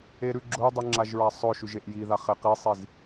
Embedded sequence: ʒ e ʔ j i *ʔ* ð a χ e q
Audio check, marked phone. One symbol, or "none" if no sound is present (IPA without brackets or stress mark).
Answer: none